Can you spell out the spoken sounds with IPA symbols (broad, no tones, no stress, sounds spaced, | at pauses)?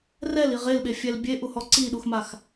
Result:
r ɛ l i ʁ e l ɓ e fʲ ɛ l bʲ e ʔ u h ɔ ǀ i ɗ u x m a x